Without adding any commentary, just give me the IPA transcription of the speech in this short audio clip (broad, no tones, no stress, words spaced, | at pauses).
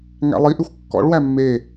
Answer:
ŋæ̰lˠiʔʉxʷ kːɔ̰ɭwæ mːe